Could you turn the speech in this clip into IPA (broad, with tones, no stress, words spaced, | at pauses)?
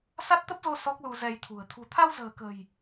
sa˦˥t̚t̪ə˦˥p̚zo˧ sɔ˦˥k̚lu˧zɛ˧jt̪ʰṳ˨˩ə̯ t̪ʰṳ˨˩t̪ʰa˧wzə̤ː˨˩kə̤˨˩j